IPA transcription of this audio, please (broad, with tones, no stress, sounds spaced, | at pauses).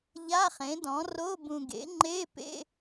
ʎ a˧˥˧ χ ẽ˩˥ d ɔ̃˩˥ r o˧˥˧ b ũ˨ ɡ ḛ˩˥ ŋ͡ǃ e˧˥˧ p ḛ˧˥˧